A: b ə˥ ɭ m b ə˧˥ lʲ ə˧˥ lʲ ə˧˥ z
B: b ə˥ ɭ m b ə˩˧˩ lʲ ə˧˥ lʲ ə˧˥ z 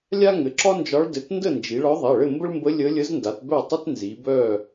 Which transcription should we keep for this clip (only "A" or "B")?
A